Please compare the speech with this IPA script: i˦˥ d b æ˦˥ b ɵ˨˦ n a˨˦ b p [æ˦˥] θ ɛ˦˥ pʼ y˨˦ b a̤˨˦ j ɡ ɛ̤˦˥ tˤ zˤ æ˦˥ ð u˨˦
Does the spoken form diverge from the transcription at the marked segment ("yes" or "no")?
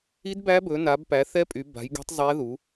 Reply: yes